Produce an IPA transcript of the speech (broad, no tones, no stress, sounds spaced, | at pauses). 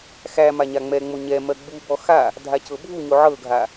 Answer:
x æ m a ɲ a ŋ͡m ɛ ŋ͡m o ɲ ɛ m ɜ ɡ͡b u b ɔ x a | dʱ a c ɤ bʱ u ɲ o ʕ ɤ ɡʱ a